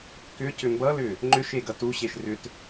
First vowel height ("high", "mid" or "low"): high